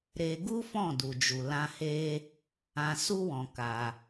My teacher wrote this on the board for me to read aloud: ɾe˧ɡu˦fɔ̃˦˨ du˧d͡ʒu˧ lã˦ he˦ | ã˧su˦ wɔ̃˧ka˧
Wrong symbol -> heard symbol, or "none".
none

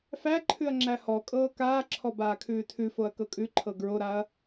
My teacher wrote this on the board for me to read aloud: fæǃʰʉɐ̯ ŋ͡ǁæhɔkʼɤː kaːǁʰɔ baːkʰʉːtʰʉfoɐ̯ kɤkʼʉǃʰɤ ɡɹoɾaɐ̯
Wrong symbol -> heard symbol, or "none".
none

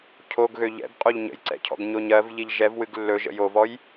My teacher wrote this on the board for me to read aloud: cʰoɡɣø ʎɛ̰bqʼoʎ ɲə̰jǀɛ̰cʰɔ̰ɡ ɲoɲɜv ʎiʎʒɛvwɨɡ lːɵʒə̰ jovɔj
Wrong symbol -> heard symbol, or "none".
none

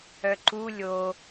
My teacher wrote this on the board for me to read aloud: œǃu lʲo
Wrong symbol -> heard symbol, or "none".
none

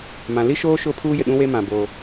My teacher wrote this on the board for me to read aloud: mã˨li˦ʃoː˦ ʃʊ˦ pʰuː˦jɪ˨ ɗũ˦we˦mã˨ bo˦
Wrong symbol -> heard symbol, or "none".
none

